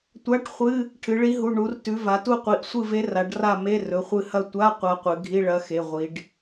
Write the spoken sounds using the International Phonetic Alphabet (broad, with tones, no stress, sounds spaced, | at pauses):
tʷ a˧˥˧ ʈ χʷ ɨ˧˥˧ | ʈʰ ɨ˩˧ ɭ i˧˥ ɦ u˩˧˩ ɳ u˩˧ r t ʉ˩˧ v a˩˧ t u˦˨ qʷ i˩˧˩ ʔ sʷ ɨ˦˨ v e˧˥ r a˩˧ ɖ r a˦˨ m e˧˥˧ r ɵ˩˧˩ χʷ ɨ˦˨ h ɐ˦˨ tʷ a˧˥˧ qʷ a˧˥ qʷ ɨ˩˧ ɡʱ i˧˥˧ ɭ ɐ˧˥ x e˩˧˩ ʁʷ i˩˧ ɖ